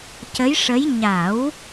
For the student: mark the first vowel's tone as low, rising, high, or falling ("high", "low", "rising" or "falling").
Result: rising